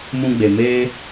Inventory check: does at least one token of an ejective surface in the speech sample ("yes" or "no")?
no